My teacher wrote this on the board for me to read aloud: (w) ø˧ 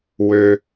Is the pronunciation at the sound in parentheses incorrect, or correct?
correct